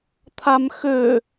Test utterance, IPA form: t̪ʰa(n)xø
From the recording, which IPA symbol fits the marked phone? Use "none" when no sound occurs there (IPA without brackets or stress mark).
m